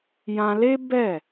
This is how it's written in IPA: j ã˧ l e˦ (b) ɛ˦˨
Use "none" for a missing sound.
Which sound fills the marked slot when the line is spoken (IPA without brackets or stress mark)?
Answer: b